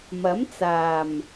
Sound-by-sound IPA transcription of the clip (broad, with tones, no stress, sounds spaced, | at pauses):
m ɐ˨˥ m t͡s aː˨˩ m